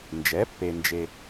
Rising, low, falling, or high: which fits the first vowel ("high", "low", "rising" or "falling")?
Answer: rising